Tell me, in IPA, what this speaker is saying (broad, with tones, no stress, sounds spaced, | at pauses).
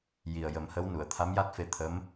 j i˨˩ ə̯ j ə˨˩˦ m h ə˧˥ w n u˨˩˨ ə̯ t̪ʰ a˧˥ m j a˦˥ t̚ f e˧ t̪ʰ ə˧˥ m